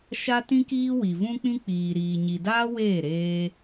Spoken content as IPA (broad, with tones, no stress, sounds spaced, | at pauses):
ʃ a˦ t ĩ˦ k iː˦ w i˨ v ũ˦ k͡p ĩ˦ k͡p iː˨ ɾ iː˨ ɲ i˨ d aː˦ w eː˦˨ ɾ eː˧